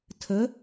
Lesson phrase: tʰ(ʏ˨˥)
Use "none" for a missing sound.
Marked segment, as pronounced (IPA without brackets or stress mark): ə˨˥